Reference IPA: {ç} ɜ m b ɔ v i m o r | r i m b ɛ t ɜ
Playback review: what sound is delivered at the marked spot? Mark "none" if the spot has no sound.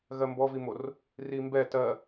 ɣ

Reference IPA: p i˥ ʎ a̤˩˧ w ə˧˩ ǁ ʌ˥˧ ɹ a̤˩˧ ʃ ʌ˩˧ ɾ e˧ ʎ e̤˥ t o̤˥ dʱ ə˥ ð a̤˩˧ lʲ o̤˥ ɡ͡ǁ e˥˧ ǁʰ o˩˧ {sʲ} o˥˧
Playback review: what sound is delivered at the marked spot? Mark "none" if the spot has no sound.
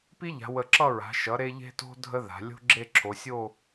sʲ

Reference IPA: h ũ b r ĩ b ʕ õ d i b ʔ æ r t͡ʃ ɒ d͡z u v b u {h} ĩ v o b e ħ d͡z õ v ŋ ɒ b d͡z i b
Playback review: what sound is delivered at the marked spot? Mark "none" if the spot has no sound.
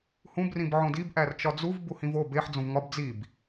h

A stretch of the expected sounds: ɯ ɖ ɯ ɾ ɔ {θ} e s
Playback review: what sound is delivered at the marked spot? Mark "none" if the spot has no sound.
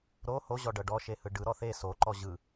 θ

